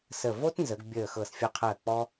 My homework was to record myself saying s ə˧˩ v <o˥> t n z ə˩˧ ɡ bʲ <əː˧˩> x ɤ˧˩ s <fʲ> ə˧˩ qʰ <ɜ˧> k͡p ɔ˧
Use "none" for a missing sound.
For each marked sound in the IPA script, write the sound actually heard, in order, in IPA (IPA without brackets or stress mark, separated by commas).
o˥, əː˧˩, fʲ, ɜ˧˩